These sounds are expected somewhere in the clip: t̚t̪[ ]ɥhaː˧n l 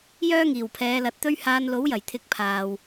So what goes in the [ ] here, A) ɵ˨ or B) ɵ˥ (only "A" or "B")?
B